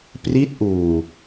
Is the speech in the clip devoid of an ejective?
yes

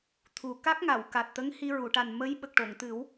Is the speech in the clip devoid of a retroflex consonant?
no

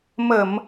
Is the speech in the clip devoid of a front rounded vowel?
yes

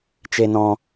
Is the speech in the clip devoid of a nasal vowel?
no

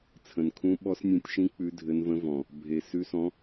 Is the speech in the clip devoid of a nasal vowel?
no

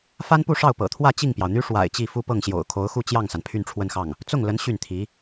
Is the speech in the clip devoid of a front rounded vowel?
no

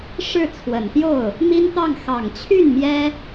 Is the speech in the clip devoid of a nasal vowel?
yes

